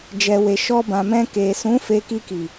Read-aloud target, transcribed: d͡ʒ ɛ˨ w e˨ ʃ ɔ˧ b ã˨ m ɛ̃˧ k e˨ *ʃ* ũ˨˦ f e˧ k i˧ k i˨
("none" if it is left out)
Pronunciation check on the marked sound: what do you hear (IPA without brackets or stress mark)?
s